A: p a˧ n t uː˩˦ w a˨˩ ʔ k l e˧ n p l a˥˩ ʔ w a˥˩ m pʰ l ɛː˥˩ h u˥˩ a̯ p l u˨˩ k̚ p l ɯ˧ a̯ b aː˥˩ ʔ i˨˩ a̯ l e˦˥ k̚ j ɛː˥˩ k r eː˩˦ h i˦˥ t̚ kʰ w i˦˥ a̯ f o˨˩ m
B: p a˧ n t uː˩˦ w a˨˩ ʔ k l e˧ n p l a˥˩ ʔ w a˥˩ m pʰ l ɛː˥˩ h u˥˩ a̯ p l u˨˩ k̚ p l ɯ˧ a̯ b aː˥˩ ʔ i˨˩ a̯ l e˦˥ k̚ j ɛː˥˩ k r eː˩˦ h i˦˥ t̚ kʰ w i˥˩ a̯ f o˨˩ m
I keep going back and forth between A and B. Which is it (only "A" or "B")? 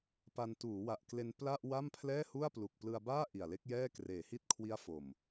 A